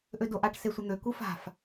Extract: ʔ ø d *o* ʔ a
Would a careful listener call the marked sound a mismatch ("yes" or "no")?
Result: no